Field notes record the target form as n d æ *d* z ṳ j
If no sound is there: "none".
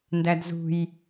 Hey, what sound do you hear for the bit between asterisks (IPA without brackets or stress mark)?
d